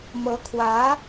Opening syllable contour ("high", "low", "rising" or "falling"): rising